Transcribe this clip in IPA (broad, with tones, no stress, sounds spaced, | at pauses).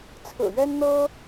t͡sʰ ɹ̩˨˩ ɥ ɛ˦ n n̪ ɤ˦